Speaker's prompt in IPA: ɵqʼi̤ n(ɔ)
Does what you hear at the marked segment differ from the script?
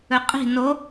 yes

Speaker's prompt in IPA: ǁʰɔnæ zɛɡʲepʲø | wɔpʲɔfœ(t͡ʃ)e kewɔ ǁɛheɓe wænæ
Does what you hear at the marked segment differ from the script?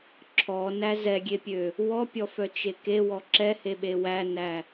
no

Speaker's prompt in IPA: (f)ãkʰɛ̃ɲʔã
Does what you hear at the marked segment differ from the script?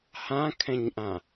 yes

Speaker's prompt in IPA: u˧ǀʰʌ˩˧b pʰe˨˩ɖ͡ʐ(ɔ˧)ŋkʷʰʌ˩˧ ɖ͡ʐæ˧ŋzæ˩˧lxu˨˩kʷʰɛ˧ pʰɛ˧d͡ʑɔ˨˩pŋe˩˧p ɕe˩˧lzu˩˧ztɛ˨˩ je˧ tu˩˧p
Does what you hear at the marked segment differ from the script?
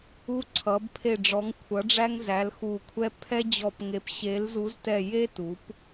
yes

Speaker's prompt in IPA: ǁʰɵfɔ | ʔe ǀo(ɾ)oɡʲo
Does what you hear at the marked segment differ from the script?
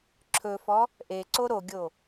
no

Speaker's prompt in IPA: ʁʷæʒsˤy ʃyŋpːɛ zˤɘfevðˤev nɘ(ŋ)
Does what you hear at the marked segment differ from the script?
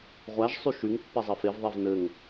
no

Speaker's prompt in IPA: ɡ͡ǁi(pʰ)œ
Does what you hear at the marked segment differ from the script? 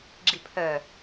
no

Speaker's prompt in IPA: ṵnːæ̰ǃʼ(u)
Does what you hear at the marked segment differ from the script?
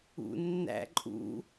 yes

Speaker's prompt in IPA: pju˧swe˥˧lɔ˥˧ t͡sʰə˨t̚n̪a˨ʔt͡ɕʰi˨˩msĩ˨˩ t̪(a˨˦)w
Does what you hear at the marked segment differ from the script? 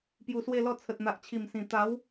no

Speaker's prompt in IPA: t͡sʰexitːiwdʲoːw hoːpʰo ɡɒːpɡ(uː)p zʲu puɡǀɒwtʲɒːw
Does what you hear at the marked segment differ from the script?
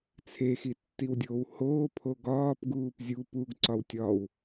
no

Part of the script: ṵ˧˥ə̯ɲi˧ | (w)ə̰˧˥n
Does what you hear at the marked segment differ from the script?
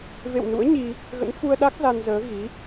yes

